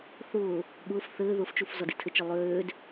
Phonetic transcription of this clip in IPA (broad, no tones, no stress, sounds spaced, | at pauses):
θ ʊː | ɠ ʊː f θ ɘː ð ʊ f t͡ʃ u f z ɒ d i tʰ ɘ t͡ʃ ɘ lˠ øː d